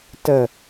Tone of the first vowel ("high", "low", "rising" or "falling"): low